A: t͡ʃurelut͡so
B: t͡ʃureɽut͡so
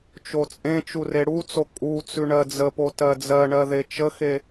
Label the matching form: B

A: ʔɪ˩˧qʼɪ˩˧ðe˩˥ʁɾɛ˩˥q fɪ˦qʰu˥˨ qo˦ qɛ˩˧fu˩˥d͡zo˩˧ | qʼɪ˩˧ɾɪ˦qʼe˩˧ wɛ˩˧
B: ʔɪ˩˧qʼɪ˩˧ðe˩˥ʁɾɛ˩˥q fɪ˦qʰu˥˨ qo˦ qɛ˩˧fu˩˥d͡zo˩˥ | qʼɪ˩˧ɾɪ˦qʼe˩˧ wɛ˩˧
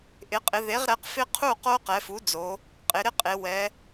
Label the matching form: A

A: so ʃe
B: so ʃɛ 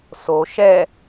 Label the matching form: B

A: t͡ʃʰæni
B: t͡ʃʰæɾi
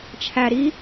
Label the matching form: B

